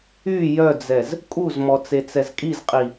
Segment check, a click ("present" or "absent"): absent